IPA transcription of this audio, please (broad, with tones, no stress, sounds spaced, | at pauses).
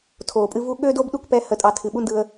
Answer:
tʰ oː˨ pʼ ɨ˧ v u˦ ɠ øː˦ d oː˦ b ɗ u˦˨ k p ɛ˧ h ə˨ tʼ ɑ˨ tʰ ɨ˨ ɓ u˦ n d ɯ˧ ə̯